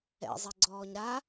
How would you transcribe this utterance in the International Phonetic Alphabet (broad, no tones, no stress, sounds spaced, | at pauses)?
ɛ̰ zˤ ɛ ɡ͡ǀ ɔː ɲ ɾ a